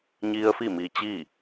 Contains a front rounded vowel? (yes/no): no